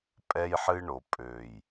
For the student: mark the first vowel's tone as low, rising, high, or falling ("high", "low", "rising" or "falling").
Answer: high